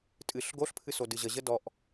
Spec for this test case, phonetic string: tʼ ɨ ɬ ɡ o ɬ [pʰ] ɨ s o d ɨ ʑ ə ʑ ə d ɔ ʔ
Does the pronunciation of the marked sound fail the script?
no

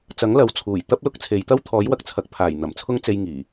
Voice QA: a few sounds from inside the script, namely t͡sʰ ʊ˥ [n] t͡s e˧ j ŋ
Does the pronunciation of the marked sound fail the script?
yes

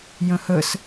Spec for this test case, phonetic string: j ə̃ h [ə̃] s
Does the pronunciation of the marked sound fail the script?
yes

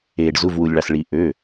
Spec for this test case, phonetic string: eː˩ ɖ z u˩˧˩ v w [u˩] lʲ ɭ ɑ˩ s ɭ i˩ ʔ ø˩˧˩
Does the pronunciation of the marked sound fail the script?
no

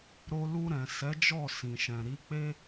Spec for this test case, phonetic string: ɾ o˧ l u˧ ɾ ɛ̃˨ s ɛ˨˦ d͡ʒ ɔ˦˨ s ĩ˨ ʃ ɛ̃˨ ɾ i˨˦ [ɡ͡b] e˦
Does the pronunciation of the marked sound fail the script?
yes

